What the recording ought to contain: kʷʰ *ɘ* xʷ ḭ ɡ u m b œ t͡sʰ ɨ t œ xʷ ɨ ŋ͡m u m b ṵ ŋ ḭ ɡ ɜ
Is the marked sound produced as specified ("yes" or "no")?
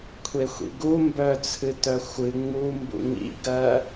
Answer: no